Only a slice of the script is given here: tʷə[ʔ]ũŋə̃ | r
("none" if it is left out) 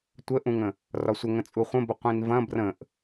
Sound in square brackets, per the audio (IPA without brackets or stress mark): ʔ